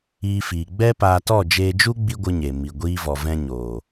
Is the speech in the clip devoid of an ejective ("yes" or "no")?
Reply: yes